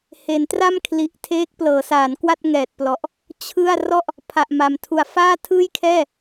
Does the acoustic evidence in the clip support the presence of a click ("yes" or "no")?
no